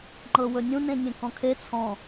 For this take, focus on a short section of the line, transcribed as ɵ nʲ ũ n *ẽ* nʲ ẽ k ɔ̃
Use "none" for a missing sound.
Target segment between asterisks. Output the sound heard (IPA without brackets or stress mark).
ẽ